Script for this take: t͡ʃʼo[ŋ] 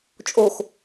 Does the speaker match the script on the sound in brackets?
no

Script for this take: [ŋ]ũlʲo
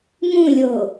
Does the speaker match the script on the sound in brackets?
yes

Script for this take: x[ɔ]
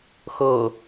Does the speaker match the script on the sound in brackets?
no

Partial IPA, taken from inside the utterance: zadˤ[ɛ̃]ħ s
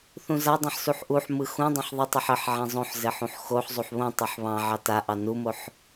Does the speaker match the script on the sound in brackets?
yes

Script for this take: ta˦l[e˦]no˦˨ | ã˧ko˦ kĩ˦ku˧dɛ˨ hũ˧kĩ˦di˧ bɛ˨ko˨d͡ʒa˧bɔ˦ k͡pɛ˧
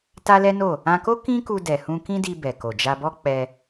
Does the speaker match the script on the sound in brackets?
no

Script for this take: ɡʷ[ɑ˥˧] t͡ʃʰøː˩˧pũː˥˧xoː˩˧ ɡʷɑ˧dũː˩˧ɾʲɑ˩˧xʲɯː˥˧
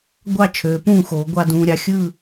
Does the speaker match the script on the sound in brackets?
yes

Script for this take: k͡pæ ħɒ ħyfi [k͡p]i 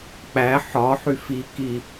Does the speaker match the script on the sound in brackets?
no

